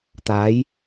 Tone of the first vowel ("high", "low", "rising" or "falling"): rising